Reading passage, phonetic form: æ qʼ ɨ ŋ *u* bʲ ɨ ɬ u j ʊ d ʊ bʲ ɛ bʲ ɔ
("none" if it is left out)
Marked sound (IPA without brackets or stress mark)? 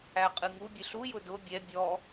u